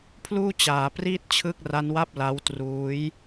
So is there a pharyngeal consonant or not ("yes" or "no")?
no